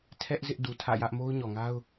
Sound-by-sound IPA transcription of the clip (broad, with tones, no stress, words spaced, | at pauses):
tʰɛ˦ʔ zɪ˦ʔdu˨tʰä̰˦˨jä˦ʔ mo˦ʊ̯ɲɔ˨ŋa˦ʊ̯